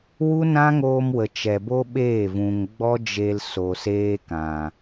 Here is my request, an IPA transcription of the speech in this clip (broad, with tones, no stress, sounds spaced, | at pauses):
w u˦ n ã˦ ŋ oː˧ m w ə˨ t͡ʃ ɛ˨ b o˦ ɓ eː˦˨ v ũ˨ ŋ ɡ͡b ɔ˦ d͡ʒ e˧ l s o˨ s eː˧ k ã˨